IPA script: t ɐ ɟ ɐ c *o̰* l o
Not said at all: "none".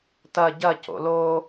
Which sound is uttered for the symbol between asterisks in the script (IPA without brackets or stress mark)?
o̰